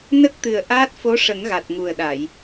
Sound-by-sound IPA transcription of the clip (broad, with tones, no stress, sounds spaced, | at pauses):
n ə˦˥ k̚ t̪ ɨ˨˩ ə̯ ʔ aː˦˥ t̚ f o˧˥ ʂ ə˨˩˦ ŋ ɣ a˨˩ t̚ ŋ u˨˩ ə̯ ɗ a˨˩˨ j